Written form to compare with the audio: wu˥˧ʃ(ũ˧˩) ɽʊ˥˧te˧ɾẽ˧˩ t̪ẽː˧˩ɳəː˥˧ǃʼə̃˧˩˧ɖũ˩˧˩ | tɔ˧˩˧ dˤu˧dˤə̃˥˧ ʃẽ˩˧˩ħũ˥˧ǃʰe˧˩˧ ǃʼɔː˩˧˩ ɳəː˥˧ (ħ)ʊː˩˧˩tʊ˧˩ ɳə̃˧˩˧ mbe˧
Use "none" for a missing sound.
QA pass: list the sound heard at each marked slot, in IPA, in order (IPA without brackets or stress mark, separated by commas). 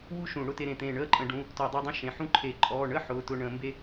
ũ˧˩˧, ħ